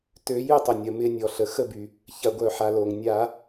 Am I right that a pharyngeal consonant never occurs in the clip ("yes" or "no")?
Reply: no